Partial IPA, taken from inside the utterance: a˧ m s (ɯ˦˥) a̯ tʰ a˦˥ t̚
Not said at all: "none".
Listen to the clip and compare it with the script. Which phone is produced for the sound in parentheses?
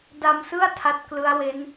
ɯ˥˩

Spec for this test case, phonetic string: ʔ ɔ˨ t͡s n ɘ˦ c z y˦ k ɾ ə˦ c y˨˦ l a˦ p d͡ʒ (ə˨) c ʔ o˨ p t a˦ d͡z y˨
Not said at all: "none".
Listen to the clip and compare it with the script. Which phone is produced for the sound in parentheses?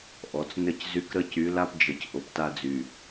ə˨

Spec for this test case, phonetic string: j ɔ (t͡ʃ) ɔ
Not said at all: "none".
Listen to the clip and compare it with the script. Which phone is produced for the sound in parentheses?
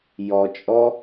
t͡ʃʼ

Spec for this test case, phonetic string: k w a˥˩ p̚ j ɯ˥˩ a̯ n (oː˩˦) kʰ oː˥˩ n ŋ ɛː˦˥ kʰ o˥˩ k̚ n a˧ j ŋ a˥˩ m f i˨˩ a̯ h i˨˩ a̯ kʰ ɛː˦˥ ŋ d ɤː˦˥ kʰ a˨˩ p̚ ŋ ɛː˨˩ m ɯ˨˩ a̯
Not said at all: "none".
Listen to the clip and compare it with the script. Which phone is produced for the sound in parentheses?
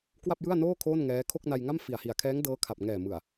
oː˥˩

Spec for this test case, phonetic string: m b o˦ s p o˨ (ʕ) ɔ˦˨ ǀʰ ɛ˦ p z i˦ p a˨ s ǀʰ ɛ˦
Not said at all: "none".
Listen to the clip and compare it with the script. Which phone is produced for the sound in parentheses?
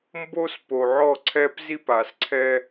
ʕ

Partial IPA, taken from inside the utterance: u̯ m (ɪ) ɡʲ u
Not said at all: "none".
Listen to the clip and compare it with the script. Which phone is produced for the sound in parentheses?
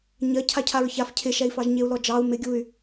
ɪ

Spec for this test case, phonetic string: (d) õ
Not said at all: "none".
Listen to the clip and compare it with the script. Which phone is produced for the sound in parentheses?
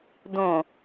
d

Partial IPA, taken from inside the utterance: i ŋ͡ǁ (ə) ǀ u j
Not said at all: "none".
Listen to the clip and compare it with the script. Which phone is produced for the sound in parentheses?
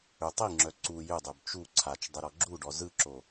œ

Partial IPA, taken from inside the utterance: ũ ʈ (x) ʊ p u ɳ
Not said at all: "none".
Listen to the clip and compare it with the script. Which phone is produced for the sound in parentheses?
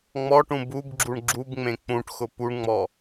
x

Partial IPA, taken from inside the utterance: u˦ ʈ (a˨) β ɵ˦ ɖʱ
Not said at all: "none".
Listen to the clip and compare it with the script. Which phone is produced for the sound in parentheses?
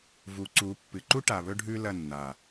a˨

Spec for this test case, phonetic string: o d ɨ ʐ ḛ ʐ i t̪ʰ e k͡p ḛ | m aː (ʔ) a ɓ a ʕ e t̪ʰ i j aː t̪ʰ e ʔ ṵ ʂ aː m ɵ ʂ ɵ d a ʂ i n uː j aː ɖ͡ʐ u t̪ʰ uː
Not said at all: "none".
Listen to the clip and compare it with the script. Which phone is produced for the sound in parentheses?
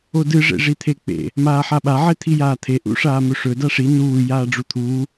ħ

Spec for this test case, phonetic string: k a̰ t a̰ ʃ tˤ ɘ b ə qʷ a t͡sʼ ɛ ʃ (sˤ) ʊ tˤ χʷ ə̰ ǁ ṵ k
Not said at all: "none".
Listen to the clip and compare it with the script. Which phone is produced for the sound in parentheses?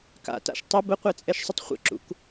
sˤ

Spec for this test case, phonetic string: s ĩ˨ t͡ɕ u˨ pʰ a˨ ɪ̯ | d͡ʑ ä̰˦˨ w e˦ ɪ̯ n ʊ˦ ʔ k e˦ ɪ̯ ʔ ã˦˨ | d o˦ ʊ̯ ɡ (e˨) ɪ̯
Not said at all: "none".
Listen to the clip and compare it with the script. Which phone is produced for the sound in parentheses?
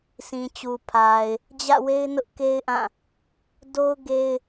e˦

